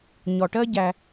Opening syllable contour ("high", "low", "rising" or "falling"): low